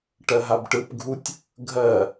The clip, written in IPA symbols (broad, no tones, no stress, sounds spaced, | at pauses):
ʈ ɜ ɦ a b ʈ ɯ p ɡʱ u tʲ | ɡʱ ɜ